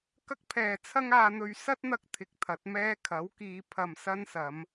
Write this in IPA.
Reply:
kɐ˥k̚pʰɛː˨ t͡sʰɐ˥ŋaː˧n̪ɵ˧ɥ sɐ˥t̚n̪ɐ˧k̚ t̪ʰɪ˧k̚t̪ʰɐ˨˥t̚mɛː˥ kʰɐ˨˥wkiː˨˧ pʰɐ˨m sɐ˥nsɐ˨˧m

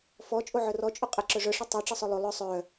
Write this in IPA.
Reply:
fɔ t͡ʃʼoʕœrɔ t͡ʃʼʊqʼɘ ǁœʐœ ʂɘtˤœ ʈ͡ʂɘsˤœlˠo lˠœ sˤœ

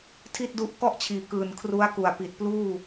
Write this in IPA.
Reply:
tʰi˥˩t̚du˦˥ʔ kɔ˥˩ʔt͡ɕʰiː˨˩ kɯː˨˩n kʰru˦˥a̯ku˨˩a̯pi˨˩t̚pluː˥˩

